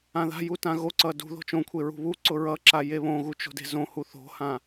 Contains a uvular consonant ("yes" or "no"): no